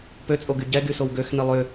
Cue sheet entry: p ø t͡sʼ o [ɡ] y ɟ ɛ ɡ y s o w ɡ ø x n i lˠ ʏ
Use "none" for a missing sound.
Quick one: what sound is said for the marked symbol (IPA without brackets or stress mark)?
ɡ